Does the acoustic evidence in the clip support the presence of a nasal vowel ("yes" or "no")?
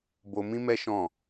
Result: yes